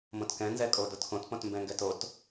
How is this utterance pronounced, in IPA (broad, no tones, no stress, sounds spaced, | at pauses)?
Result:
m õ t k ɛ̃ n z ɛ kʼ o d o t k õ t p õ t m b ɛ̃ ŋ ɡ ɛ t o t